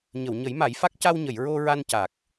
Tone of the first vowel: low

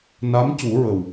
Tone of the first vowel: rising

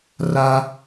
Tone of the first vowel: high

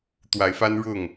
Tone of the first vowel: rising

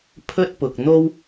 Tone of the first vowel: high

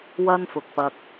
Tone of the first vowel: high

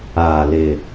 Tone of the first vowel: low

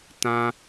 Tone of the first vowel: high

